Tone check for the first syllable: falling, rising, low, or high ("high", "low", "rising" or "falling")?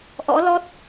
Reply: rising